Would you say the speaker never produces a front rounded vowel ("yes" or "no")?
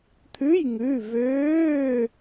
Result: no